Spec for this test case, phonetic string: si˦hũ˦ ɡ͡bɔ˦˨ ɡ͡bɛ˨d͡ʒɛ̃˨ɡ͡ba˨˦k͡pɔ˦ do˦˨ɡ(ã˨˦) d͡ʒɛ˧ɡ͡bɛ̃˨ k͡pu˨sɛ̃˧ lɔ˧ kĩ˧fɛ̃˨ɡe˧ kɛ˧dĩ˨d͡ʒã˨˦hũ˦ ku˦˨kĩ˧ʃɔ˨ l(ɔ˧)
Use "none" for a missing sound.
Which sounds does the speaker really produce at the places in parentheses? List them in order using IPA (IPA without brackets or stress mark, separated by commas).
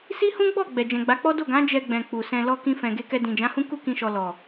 ã˨˦, ɔ˨